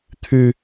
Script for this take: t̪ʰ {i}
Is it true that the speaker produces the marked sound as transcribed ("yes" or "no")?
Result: no